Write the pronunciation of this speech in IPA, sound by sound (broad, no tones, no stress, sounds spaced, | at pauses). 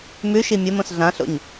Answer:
m ʉ ʃ i mʲ o m õ s ɮ ã ɬ o̰ ɲ